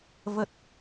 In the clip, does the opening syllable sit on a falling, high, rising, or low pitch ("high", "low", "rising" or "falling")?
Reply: low